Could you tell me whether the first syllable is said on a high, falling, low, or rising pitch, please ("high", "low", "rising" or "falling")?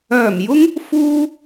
low